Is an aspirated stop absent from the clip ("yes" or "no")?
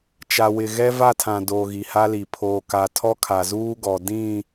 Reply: no